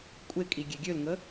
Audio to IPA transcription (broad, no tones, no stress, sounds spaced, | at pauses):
kʷʼ e kʼ i ɡʲ e ɡʲ ø l ŋ ə